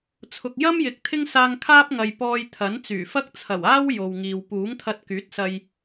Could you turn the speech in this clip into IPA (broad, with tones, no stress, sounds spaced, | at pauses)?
t͡sʰ ʊ˨ k̚ j ɐ˥ m j ɪ˨ k̚ t̪ʰ ɪ˥ ŋ s aː˧ ŋ kʰ aː˥ p̚ ŋ ɐ˨ j p ɔː˧ j t̪ʰ ɐ˨˥ n t͡s yː˨˩ f ɐ˥ k̚ t͡sʰ ɐ˨˩ w aː˥ w j o˨ w ŋ iː˨ w p uː˨˥ ŋ t̪ʰ ɐ˧ t̚ k yː˨˥ t̚ s ɐ˧ j